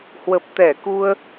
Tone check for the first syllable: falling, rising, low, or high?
low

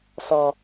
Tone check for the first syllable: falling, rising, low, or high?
low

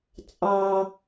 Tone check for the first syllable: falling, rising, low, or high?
low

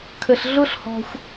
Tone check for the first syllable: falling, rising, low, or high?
low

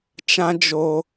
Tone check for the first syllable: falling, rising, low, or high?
high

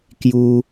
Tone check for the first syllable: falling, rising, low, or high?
high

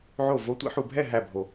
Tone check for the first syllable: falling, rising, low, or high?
falling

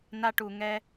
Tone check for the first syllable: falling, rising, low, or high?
high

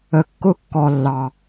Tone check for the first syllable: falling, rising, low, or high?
low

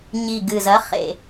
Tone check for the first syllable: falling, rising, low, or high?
low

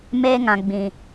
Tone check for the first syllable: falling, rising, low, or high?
high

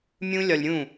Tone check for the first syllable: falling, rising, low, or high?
high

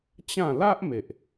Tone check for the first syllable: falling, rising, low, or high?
falling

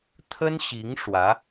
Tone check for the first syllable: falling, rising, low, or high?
high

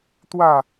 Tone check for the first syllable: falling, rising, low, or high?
falling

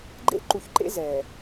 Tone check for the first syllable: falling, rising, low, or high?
high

